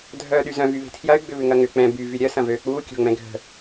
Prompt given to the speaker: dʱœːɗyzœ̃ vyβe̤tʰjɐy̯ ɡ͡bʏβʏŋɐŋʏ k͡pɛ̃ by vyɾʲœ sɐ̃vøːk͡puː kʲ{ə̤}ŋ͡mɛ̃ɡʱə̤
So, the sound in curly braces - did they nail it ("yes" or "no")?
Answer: no